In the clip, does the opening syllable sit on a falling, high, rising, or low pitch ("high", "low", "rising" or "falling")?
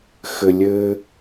low